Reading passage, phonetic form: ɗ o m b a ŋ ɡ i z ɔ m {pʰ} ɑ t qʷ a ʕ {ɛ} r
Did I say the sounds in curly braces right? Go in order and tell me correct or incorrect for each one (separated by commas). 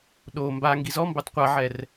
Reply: incorrect, correct